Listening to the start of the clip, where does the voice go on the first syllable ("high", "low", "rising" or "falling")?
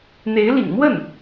rising